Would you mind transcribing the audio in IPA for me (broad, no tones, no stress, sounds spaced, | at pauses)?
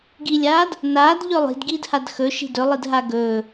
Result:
ɡ i lʲ aː d | n aː d ʎ ɵ lˠ i̤ d ɡ iː d h a d x ɵ ʃ i̤ d ɵ lˠ i d ɦ a ɡ ɵː